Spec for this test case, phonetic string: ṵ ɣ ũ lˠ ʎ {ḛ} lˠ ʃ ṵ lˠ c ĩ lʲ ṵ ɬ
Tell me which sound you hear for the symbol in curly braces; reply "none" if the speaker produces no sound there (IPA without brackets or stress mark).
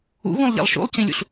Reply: ḛ